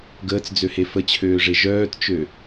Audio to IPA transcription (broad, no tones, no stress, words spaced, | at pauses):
ɡəːt͡sd͡zøhe fət͡ɕʰøːʐe ʒœːtt͡ʃø